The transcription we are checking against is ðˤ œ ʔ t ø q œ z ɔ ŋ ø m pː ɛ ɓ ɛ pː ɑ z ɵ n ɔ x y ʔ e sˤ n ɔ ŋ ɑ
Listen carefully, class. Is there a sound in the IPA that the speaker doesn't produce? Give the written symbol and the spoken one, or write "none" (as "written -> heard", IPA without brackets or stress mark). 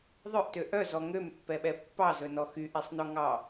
q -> ʔ